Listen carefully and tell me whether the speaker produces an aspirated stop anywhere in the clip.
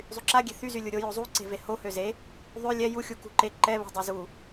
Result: no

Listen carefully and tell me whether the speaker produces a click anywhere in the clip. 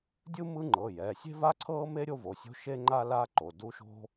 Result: yes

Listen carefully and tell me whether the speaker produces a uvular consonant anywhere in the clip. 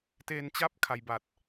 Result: no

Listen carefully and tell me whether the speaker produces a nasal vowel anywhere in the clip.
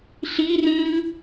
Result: yes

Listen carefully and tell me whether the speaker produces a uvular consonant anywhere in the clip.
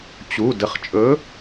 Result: yes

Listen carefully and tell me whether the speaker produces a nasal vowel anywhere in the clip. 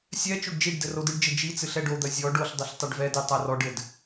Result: no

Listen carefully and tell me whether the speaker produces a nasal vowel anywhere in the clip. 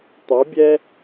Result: no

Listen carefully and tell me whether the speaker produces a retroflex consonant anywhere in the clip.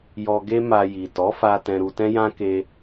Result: no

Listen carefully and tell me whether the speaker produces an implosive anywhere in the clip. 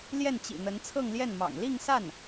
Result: no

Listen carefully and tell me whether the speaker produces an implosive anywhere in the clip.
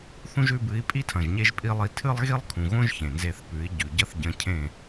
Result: no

